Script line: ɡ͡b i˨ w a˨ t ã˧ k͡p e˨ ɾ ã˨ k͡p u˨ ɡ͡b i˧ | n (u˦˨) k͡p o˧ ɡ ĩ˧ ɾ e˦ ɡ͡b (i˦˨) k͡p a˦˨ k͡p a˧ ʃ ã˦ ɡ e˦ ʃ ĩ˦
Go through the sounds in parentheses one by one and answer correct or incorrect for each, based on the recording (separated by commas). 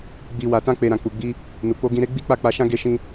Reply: incorrect, incorrect